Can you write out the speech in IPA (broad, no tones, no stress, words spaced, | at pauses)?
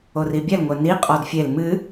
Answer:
oribʲɛl ŋʷɛni qʼɔdfʲel mɨ